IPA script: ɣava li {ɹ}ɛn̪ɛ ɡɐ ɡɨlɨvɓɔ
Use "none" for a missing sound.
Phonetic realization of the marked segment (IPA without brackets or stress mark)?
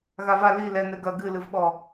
l